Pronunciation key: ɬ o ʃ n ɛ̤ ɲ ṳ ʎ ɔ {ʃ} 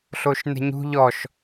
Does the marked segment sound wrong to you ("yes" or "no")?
no